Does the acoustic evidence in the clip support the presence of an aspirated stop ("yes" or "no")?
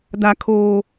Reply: yes